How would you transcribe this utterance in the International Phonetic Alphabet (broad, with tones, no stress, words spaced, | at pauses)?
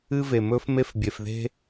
ɨ˦ve˨mɵ˦f me˦fbʲe˨fðe̤˦